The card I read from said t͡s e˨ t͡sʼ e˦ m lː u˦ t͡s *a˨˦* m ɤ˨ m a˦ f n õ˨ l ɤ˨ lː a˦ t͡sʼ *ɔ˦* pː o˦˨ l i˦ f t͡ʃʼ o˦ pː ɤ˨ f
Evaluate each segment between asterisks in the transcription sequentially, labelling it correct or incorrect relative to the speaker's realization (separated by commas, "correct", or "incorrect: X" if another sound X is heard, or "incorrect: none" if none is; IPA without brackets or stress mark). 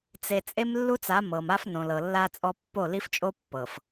correct, correct